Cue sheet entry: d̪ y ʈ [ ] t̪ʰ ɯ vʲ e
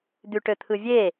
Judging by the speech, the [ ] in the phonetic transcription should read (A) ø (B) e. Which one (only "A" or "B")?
A